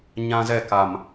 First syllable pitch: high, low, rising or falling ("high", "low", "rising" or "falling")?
high